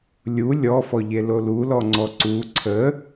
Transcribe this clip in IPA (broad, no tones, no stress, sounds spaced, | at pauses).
lʲ u lʲ ɔ f ɔ ʎ e l o l u l ɔ ŋ͡ǀ ɔ ǀ u ǀʰ ə